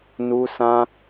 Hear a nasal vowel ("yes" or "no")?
yes